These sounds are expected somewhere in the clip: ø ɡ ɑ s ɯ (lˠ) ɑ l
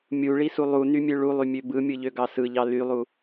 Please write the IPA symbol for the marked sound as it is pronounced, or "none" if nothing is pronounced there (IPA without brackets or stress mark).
ʎ